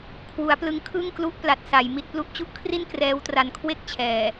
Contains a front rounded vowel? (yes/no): no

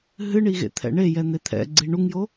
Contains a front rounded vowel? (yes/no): no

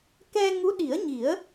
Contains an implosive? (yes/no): yes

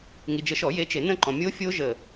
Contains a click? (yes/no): yes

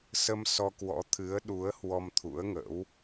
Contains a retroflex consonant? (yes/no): no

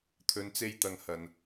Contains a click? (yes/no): no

